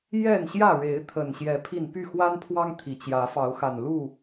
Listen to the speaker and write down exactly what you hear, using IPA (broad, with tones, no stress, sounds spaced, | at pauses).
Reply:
j ɛ˥˨ n ɕ j ä˥˨ ɻ e˨˦ ɪ̯ t̪ʰ ə˨˩ n ɕ j ɛ˨˦ pʰ i˥˨ n p y˥˨ x w a˦ n pʰ w ɑ˦ ŋ t̪ʰ i˨˩ t͡ɕ j ä˨˦ f ɑ˨˦ ʊ̯ x a˨˩ n l u˥˨